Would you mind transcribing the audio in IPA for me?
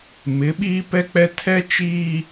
m ɪ˨˦ ɓ iː˦ p ɛ˦ k͡p ɛ˦ tʰ ɛ˦ t͡ʃ iː˦

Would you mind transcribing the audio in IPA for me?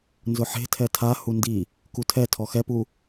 n z ʊ ħ e̤ tʰ ɛ tʰ a h u n d i | k u tʰ ɛ tʰ ɔ x ɛ p u

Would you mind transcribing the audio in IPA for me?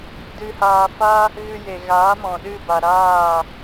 d ɨ˧ h aː˧ f a˦ | ɣ ɨ˧ j e˨ ɣ aː˨˦ m ɔ̃˨ ɗ ɨ˦˨ b a˨ ɾ aː˦˨

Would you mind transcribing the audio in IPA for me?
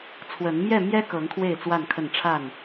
t͡sʰ w ə˨˦ n m j ɛ˥˨ m j ɛ˦ k ɤ˨˦ ŋ kʰ w e˥˨ ɪ̯ t͡s w a˥˨ n kʰ ə˥˨ n ʈ͡ʂʰ a˥˨ n

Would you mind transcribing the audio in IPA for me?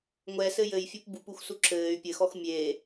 ŋʷ ɛ s ɘ j ɘ j fʲ u p b u p u x s u ǁ ɘː y̯ pʲ ɘ x ɔ x mʲ eː

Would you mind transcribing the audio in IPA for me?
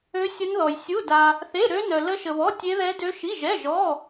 ø˦˥ sʲ ə˦˥ n ð ɔ˧ j sʲ u˧˥˧ d a˧ | θ e˧˥˧ ɾ ø˦˥ n œ˧ l ə˦˥ ʃ ə˧ β ɔ˧˥˧ tʲ e˦˥ ð ɛ˦˥ d ø˦˥ ʃ i˧˥˧ ʒ ɛ˧˥˧ ʒ ɔ˧˥˧

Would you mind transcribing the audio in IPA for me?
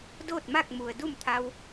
d oː˥˨ t̚ m a˥˨ k̚ m u˩ ə̯ d u˥˨ m t̪ʰ a˧ w

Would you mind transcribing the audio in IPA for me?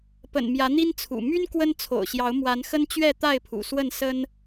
p ə̰˨˩ n m j ä˨˦ n̪ i˦ n t͡sʰ ṵ˨˩ m y˦ n k w ə˦ n t͡sʰ o̰˨˩ ʊ̯ ɕ j ɑ˨˦ ʊ̯ m w a˨˦ n x ə˦ n t͡ɕ ɥ ɛ˥˨ t̪ a˥˨ ɪ̯ pʰ ṵ˨˩ s w ə˥˨ n s ə˦ n

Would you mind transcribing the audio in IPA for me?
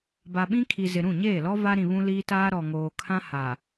b a˨ ɓ ĩ˦ kʰ i˨ z ɪ˨ ɾ ũ˦˨ ɲ eː˦˨ l ɔ˦ v a˦ ɾ ĩ˨ β ũ˦ l iː˦ t aː˦ ɾ ɔ˨ ŋ oː˨ kʰ ã˦ h a˨

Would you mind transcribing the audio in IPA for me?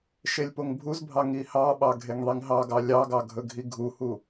ʃ e lʲ p o ŋ bʱ u z bʱ ɑ ŋ i h ɑ ɓ ɑ ɡʱ e ŋ ðˤ i ŋ ɦ ɑ ɡ ɑ lʲ ɑ ɡ ɑ ɡʱ ɵ ɡʱ i ɡʱ u h u

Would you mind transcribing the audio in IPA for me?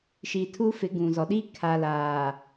ʃ i˨ tʰ u˦ f ɪ˨˦ ɡ ũ˨ z ɔ˨ ɗ i˦ kʰ a˨ l aː˨

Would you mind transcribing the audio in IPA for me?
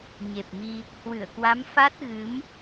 ɲ e˨˩ p̚ m i˧ | h w ɨ˧˩ ə̯ k w a˨˦ m f a˦˥ t̚ ɣ ɨ˨˦ m

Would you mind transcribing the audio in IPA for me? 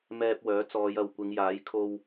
m ɛː˧ p̚ w œː˨˥ t͡s ɔː˨˧ j ɐ˨ w kʷ ɪ˨˧ ŋ j aː˨˥ j kʰ o˧ w

